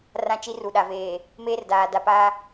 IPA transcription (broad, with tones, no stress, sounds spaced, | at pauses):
r ã˦ t͡ʃ i˦ r u˨ ɗ a˨ v eː˨ | m eː˦ r d aː˨ d a˨ p aː˦